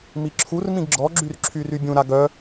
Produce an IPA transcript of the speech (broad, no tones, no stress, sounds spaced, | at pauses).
m i ǁʰ u r m ĩ ɡ ɡ͡ǁ ɔ ɡ͡ǁ y r ǁʰ y r y bʲ ũ ɾ a ɡ œ